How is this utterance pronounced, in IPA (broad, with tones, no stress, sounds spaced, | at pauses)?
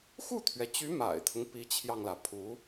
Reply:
x u˥˩ t̪ʰ ɥ ɛ˩ t͡ɕ y˧˥ m a̰˨˩ ɪ̯ t̪ʰ ʊ˦ ŋ p i˧˥ t͡ɕʰ j ɑ˧ ŋ l ä˩ pʰ u˧˥